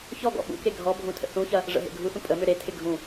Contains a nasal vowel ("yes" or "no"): yes